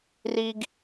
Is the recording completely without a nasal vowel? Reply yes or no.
yes